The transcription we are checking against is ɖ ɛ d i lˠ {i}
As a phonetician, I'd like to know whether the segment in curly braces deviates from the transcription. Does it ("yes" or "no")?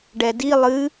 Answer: yes